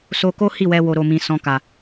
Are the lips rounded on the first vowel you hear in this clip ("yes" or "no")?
yes